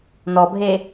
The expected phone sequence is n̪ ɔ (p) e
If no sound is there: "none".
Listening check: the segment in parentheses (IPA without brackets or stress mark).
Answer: bʱ